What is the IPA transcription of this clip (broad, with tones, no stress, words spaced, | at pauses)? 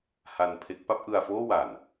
ha˧npʰe˦˥k̚ pa˥˩p̚ ʔɯ˧a̯foː˥˩wa˨˩n